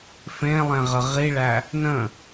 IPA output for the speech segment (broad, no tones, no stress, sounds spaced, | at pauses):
f ẽ lˠ ẽ ʁ ə ʁ i ɭ æ | n ə̃